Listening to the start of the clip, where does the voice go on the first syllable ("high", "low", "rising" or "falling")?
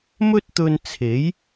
high